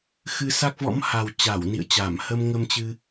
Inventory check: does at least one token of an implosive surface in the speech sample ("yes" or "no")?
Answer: no